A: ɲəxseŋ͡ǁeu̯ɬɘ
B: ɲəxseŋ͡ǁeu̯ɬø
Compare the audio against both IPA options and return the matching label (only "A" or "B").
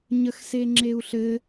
A